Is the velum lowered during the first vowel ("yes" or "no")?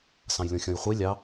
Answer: yes